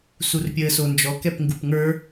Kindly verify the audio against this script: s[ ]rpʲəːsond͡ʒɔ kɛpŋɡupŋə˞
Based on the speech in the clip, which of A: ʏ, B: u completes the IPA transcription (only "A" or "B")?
B